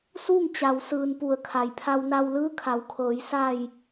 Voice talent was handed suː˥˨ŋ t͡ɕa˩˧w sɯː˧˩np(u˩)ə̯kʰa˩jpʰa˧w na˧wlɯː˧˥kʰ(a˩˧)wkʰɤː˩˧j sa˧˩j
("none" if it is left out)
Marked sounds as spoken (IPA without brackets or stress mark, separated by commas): u˧˩, a˩˧